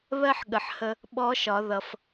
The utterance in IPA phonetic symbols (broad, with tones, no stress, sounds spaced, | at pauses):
β ɜ˥ ħ ɠ ə˩˧ ħ h ə˧ | ɓ ɔ˧˥ ʃ ɒ˩˧ ð ʌ˩ f